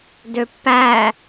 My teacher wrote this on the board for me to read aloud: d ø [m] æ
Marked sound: incorrect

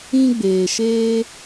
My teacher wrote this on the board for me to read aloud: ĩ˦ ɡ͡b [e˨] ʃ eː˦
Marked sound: incorrect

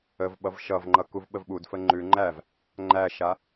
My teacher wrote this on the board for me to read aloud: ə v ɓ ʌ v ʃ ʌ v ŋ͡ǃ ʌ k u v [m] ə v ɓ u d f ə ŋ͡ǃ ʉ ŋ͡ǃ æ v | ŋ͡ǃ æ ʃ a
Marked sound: incorrect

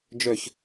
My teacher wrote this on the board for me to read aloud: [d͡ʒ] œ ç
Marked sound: correct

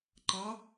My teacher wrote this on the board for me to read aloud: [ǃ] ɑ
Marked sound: correct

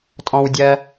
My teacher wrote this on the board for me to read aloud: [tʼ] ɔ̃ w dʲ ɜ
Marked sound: correct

